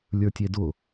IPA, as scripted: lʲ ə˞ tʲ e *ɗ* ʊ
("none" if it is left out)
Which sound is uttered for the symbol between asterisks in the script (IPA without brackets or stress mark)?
d